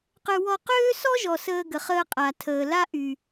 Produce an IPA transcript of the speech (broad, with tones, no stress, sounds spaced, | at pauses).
q ø˦ w ɔ˦ q øː˦ s ɔ˦ ʒ ɔ˨ s əː˦ ɡ ə˨ χ əː˦ qʼ a˨ tʰ əː˨ l a˦ ʔ y˨